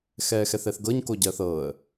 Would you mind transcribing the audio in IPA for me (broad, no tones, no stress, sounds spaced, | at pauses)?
x ɛː x ɛ θ ɛ θ ɡ ɤ ɲ k o ɟ ɜ θ ɤː ə̯